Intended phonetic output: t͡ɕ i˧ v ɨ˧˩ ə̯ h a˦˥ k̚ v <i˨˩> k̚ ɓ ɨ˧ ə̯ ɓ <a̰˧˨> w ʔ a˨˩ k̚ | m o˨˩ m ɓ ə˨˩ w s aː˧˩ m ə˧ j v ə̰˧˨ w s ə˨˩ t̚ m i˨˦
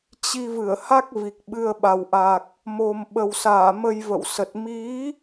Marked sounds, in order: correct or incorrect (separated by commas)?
correct, incorrect